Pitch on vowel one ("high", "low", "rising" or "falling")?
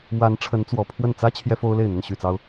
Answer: rising